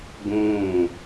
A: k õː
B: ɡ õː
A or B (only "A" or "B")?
B